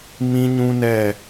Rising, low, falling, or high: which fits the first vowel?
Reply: high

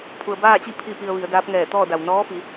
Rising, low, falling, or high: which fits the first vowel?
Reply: low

